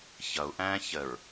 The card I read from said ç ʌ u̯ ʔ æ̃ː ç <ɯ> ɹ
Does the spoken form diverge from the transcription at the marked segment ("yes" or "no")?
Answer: yes